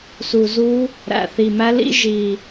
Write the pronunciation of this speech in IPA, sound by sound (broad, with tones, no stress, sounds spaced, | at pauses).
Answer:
s u˨˩ z u˦˥ | ɾ æ̰˨˩ θ i˨˩ m æ˦˥ l ḭ˦˥ ʒ i˨˩